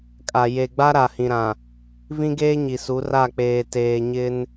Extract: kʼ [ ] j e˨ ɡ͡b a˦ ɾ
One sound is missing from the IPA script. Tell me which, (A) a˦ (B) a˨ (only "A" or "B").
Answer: B